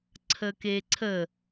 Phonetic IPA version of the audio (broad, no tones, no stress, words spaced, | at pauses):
ǀʰəkeǀʰə